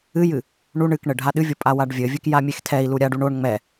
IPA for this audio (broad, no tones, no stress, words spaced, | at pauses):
ɨjɨ | ɳu ɳɨkɳɘ ɖʱaɗɨvʲo pʼawaɖvʲɘvʲɨk jamʲextʰɛi̯lu ɾʲaɖuɳ oɳ ŋ͡mɛ